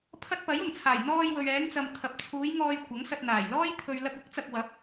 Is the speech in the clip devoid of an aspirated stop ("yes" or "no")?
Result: no